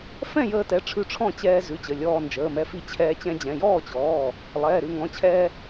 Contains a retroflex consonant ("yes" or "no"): yes